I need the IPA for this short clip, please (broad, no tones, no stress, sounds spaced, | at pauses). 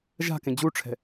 ʒ a̤ k ẽ d͡ʑ u ʈ͡ʂʰ ɛ̤